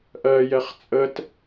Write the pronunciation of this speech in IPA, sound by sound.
ʔ ɜ j ɛ χ t͡sʼ ə t

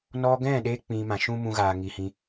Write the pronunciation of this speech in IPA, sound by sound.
n ɔ˧ ɡ ɛ̃˦˨ ɗ e˧ k͡p ĩ˧ m ã˨ ʃ ũ˦ m ũ˧ ɣ aː˨ ŋ i˨ h ĩ˧

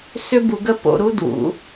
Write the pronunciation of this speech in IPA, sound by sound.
s ʏ˦ b u˧ ɡ ə˦ p o̰˧ ɾ u˦ d w ṵ˨˦

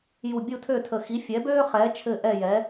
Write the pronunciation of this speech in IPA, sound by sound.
j u˧˩ bʲ u˥˩ tʰ ø˥˩ tʰ ə˧˩ x i˨˥ fʲ ɛ˨˥ b øː˥ χ ɛː˨˥ t͡ʃʰ ɘ˥˧ ʔ ɛ˥˧ j ɛ˨˥

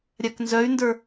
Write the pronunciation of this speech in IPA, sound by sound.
ɾʲ a k n z œ y̯ n d ə˞

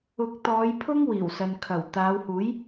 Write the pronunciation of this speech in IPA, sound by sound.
ʊ˨˥ k̚ t̪ ɔː˨˧ j pʰ ʊ˥ ŋ w iː˨˩ w s ɐ˨ n kʰ ɐ˨˩ w t̪ aː˨˧ w h uː˨˥ j

